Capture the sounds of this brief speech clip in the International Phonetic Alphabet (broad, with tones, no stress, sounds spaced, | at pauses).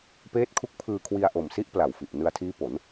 p eː˦˥ t̚ kʰ u˦˥ k̚ pʰ ɯː˧ kʰ w i˧ a̯ ʔ o˨˩ m s i˦˥ ʔ p l a˨˩ w f i˨˩ ʔ n ɯ˧ a̯ tʰ iː˦˥ p o˩˦ n